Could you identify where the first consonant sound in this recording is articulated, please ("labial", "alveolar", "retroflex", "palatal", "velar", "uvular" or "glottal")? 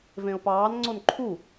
labial